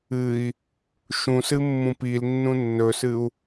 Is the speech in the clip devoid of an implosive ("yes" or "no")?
yes